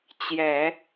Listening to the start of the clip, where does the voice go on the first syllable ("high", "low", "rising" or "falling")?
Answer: low